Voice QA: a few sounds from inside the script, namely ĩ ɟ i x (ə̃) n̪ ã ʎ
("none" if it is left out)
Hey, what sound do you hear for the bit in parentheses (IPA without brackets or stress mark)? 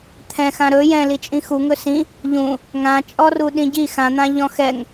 ã